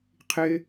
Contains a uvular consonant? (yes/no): yes